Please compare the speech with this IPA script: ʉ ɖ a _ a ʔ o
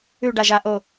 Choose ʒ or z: ʒ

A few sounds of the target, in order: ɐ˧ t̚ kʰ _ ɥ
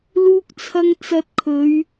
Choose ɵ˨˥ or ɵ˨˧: ɵ˨˧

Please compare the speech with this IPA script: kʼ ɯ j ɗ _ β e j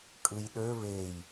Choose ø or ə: ø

